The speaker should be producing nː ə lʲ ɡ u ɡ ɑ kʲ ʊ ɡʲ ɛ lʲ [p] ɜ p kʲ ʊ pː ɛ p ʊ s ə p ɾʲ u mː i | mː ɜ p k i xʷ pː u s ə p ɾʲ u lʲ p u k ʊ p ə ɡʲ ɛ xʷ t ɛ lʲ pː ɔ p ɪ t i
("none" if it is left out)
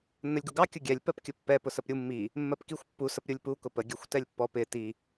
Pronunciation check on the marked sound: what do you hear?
p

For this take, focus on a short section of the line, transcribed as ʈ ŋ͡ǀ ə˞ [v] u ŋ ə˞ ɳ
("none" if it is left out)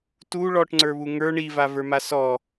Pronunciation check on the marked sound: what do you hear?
β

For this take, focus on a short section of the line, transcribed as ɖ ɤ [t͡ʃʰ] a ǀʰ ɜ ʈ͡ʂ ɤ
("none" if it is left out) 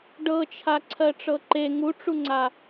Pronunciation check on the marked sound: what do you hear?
t͡ʃʰ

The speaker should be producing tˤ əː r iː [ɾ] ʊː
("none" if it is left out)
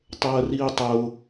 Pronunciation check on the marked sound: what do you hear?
tˤ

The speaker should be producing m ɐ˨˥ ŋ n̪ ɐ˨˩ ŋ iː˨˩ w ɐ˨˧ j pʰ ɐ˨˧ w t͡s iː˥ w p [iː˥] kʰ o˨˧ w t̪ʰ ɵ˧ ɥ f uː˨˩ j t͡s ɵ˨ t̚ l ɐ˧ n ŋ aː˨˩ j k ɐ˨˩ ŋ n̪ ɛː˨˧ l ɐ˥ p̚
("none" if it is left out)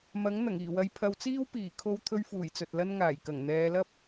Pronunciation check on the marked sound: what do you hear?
iː˨˩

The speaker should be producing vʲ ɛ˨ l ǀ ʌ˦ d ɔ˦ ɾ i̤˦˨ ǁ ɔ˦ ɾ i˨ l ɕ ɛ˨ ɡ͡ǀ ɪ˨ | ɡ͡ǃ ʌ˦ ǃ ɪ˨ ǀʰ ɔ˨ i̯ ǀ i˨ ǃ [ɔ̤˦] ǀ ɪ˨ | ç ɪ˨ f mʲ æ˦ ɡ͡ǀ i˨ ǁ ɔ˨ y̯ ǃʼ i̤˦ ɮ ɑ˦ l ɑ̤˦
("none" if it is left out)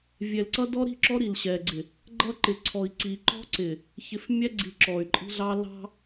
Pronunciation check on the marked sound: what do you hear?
ɔ̤˦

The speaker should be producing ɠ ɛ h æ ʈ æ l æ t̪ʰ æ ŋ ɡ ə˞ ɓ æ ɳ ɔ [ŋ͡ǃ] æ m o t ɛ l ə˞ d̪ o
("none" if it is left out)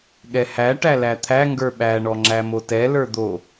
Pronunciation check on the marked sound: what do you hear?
ŋ͡ǁ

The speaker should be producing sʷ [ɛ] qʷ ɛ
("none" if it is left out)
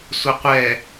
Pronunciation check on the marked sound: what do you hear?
ɛ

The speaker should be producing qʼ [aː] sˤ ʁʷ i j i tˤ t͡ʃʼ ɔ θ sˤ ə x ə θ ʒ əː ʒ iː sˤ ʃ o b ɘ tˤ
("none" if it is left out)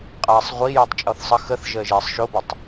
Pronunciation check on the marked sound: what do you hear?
aː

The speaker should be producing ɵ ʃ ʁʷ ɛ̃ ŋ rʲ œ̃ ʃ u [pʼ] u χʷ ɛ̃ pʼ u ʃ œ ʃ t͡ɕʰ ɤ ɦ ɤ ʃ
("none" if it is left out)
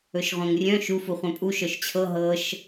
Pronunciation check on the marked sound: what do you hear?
f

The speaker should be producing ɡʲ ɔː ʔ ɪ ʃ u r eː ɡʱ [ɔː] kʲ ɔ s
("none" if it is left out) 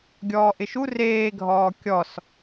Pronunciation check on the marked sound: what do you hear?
ɔː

